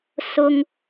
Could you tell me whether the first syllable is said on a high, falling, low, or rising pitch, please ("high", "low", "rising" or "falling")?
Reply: high